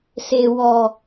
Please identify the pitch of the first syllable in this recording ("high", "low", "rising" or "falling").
low